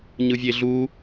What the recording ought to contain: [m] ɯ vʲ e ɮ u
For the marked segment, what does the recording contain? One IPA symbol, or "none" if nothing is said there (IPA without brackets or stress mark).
ɲ